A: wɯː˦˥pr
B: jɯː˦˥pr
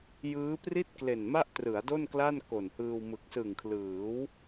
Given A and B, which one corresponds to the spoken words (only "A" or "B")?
B